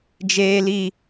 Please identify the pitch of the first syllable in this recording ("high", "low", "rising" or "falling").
high